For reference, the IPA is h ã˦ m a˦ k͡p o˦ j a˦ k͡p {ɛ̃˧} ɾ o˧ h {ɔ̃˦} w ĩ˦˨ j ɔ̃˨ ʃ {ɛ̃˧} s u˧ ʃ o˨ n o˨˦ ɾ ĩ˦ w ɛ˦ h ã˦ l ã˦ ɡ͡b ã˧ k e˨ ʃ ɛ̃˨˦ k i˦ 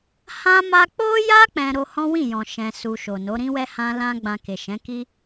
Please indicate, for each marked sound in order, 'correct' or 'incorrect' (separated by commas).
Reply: incorrect, correct, correct